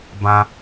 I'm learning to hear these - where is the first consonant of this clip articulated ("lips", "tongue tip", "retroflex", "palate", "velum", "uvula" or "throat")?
lips